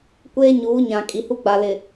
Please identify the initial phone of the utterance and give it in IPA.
kʷ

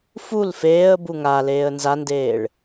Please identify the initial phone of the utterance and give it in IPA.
f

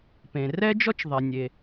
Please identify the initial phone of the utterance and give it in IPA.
p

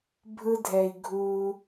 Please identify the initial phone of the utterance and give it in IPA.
bʱ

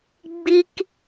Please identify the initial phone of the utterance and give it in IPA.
ɡ͡b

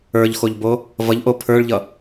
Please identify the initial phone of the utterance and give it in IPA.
ə˞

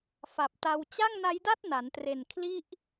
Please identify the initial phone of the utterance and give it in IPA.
f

